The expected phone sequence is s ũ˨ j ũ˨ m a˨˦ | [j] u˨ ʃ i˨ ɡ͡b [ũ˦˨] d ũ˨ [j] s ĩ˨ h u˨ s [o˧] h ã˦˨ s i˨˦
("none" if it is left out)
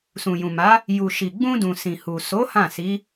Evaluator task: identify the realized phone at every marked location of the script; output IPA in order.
j, ũ˧, none, o˨˦

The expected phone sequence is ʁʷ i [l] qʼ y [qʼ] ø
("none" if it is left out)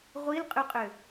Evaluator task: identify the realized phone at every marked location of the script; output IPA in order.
l, qʼ

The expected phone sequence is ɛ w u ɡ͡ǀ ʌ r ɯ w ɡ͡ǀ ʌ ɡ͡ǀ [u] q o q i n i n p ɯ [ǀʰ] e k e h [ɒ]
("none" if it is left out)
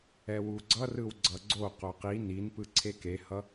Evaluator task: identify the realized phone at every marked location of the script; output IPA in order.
o, ǀʰ, ʌ

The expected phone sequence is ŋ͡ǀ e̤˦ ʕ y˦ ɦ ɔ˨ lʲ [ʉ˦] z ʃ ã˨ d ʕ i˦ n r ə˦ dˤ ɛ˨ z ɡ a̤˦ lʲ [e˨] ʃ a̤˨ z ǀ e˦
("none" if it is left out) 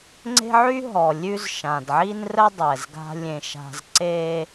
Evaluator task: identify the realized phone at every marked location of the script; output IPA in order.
ʉ˦, ẽ˨

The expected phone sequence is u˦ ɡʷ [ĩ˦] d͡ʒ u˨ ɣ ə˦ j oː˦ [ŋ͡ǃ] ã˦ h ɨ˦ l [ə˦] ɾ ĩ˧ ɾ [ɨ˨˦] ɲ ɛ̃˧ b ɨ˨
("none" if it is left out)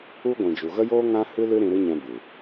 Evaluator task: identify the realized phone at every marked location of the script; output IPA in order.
ĩ˨, ŋ, ɨ˦, ɨ˦

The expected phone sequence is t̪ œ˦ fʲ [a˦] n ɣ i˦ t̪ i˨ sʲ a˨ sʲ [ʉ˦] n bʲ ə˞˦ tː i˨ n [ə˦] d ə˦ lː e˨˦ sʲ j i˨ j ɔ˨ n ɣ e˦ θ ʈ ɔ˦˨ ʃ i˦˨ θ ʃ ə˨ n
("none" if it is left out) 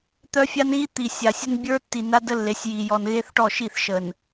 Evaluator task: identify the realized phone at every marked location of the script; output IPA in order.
a˦, ə˦, a˦

